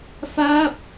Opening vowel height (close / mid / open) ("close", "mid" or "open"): open